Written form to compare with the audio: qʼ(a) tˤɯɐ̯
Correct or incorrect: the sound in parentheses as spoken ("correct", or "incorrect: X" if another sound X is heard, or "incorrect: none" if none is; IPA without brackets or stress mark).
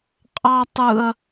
incorrect: ɑ